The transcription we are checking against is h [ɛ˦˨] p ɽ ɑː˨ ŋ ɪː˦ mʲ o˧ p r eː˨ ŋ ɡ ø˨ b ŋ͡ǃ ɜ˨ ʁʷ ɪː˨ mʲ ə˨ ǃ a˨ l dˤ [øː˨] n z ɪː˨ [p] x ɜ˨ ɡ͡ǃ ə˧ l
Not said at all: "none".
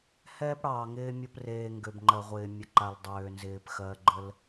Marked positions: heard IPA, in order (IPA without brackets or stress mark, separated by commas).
ɛ˦, øː˨, p